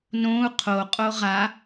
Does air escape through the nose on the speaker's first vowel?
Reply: yes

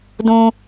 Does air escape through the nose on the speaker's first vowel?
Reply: yes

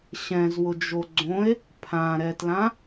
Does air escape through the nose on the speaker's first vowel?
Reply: yes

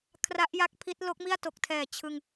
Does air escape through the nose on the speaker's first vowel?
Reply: no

